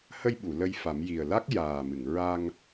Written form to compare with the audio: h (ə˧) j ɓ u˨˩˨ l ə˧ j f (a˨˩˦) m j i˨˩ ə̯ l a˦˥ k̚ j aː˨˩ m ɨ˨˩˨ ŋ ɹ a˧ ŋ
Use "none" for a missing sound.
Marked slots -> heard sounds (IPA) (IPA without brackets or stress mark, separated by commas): ə˧, a˨˩˦